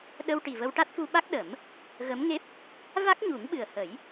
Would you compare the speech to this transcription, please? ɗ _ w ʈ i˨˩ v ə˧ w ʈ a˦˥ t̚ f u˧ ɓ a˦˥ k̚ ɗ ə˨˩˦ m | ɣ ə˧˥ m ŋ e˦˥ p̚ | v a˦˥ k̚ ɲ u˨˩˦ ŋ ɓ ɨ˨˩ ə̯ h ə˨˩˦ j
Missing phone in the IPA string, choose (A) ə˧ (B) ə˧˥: A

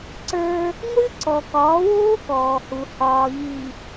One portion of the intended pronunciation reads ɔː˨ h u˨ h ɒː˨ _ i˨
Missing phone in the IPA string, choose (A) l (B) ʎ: B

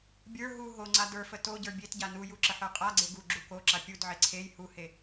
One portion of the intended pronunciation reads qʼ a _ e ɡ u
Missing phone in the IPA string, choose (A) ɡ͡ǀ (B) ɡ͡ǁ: A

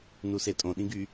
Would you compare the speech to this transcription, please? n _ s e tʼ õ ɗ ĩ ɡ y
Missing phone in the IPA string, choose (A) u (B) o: A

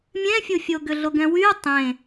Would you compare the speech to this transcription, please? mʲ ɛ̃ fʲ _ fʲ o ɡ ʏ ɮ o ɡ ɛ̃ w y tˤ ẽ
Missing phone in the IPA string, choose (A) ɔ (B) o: B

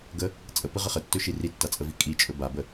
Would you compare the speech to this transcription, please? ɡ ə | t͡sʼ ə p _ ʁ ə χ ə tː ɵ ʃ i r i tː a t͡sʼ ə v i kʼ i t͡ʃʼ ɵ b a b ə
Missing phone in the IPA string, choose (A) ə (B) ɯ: B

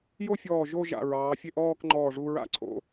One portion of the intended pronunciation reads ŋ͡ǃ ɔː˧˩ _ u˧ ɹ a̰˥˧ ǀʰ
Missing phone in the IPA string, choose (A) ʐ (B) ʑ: A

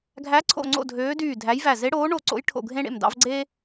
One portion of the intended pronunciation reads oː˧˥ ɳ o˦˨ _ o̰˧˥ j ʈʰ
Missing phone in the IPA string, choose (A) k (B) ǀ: B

